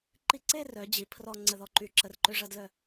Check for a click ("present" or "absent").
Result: present